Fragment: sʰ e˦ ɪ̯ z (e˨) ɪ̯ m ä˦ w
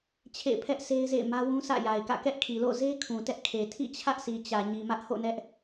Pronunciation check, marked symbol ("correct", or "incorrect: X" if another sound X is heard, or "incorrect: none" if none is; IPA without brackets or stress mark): incorrect: ḛ˦˨